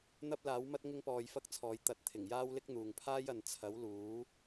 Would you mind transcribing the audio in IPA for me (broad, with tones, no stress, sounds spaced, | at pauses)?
n̪ ɐ˥ p̚ l aː˨˥ w m ɐ˥ t̚ ŋ ɪ˥ ŋ p ɔː˧ j f ɐ˥ k̚ t͡sʰ ɔː˨˧ j t̪ ɐ˨ t̚ t̪ʰ ɪ˨˩ ŋ j aː˥ w l ɪ˥ k̚ n̪ uː˨ ŋ pʰ aː˥ j ɐ˨ n t͡sʰ ɐ˨˥ w l uː˨˥